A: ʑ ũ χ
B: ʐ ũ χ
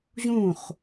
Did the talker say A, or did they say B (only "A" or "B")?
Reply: A